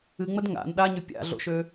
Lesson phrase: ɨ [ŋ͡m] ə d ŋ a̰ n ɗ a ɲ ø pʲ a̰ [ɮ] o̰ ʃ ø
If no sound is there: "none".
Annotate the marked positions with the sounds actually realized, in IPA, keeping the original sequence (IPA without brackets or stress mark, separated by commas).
ŋ͡m, ɮ